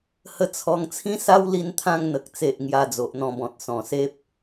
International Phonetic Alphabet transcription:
h ə˧ t͡sʰ ɔ˧ ŋ t͡sʰ ĩ˦ s a˦ w l i˧ n t̪ʰ ã˧ ŋ n̪ ə˨ k̚ t͡s e˨ ʔ ŋ j a˧ d͡z o˨ ʔ n̪ ɔ̃˧ b ɔ̃˨ t̚ s ɔ̃˨˩ s e˦ p̚

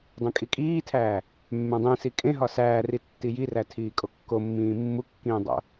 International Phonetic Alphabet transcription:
dˤ ẽ kʼ i kʼ iː tʰ æː | mː ẽ dˤ ĩ s i kʼ ẽ ɦ ɒ s æː r i tː i j i r æ tʰ iː kʼ o kː o mː ĩː mː u kː ĩː dˤ o̰

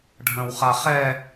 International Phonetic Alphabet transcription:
ɖʱ ə̃ w χ a χ ɛ

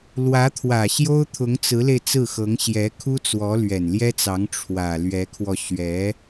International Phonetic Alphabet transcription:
l w ä˧˥ t̪ʰ w ä˨˩ ɕ j o˥ ʊ̯ t̪ʰ ʊ˧˥ ŋ t͡s ɹ̩˧˥ l e˧ ɪ̯ t͡s ɹ̩˥˩ x ɤ˧˥ ŋ ɕ j ɛ˧˥ kʰ u˥ t͡s w ɔ˧˥ l ɥ ɛ˨˩ n l j ɛ˥ t͡s ɑ˧˥ ŋ ʈ͡ʂʰ w ä˨˩ l ɥ ɛ˧˥ kʰ w ɔ˧ ɕ ɥ ɛ˧˥

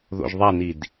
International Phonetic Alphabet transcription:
ð o̰ ʒ ðˤ a n i d

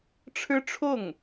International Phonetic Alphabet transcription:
ʈ͡ʂʰ ɻ̩˥ ʈ͡ʂʰ ʊ˥˩ ŋ

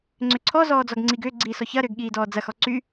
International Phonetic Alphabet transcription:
ŋ͡ǀ ʏ ǀʰ ɔ z ɔː d͡z ɔ ɡ ŋ͡ǀ i ɡ ʏː ɡ͡ǀ iː s ɔ ç ɐ ɾ ʏː ɡ ɠ iː d ɔː d͡z ɐ x ɔ ǀ y

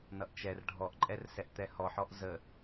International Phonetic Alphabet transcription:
n ʌ ʔ t͡ʃ ɛ r ɖʱ ɔ ʔ ǃʼ ɛ r s ɛ ʔ t̪ ɛ h ɔ ħ ɔ ʔ z ə

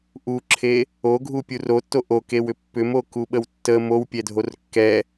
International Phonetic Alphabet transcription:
ʔ u ǁʰ e | o ɡʱ u pʲ u r o tː o ʔ o k e w ʏ pː ʏ m o k u ɓ ə w tː ə m o w pʲ ɛ dʱ o r kː ɛ

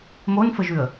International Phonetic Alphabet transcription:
m o n f ə ʒ ʉ ə̯

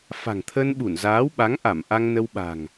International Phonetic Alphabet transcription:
f a̤˨˩ ŋ t̪ʰ ə˧ n ɓ u˧˩ n z aː˨˦ w ɓ a˨˦ ŋ ʔ a˧˩ m ʔ a˧ ŋ n ə˧ w ɓ a̤˨˩ ŋ

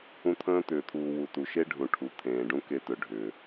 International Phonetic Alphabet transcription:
ũ˧ t̪ʰ ə̃ː˦ t̪ ʏː˨ t̪ʰ uː˨ w u˨ t u˨ ʃ e˦ ɖʱ ũ˨ ʈʰ u˨ t̪ʰ ẽː˨ ɖ ũ˦ k e˧ t ɵ˨ ɖʱ ʏː˨

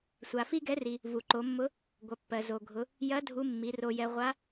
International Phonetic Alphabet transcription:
sʷ a˩ f i˥ ɡ ɛ˧˥ r i˩ | v u˩ ǃ o˩˧ mː ʊ˧˥ | ɡʷ ɐ˩˧ pː ɜ˩ z o˩ ɡʱ ʊ˩˧ | j ɐ˧˥ dʱ u˧˥ mː i˩˧ r o˧ j ɛ˧ ʁʷ a˧˥

